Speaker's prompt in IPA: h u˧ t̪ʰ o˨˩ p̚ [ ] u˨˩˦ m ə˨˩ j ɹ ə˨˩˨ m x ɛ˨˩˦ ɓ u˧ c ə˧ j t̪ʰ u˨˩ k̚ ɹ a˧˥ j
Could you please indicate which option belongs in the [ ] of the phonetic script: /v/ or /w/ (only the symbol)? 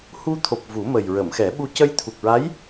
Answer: v